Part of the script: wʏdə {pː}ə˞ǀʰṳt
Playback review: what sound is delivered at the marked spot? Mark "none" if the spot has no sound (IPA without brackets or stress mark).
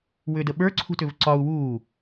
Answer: ɓ